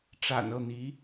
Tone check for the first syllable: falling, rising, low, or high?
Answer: low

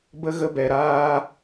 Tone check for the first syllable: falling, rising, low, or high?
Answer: high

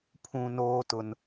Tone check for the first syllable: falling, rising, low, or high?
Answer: low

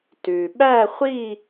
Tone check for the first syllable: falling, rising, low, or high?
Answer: low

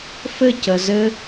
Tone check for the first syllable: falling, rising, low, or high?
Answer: falling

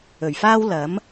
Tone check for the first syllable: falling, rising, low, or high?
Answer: low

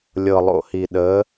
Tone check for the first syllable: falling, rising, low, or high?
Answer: low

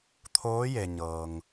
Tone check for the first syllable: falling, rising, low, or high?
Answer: rising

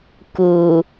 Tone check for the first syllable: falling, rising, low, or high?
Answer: low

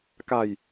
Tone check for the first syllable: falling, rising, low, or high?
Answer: low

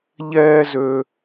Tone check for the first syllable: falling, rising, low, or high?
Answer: high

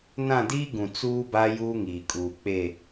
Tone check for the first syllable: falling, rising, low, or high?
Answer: falling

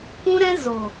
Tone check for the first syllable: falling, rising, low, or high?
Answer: high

